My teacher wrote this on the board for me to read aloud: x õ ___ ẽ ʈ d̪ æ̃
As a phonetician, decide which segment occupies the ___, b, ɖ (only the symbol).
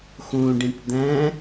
ɖ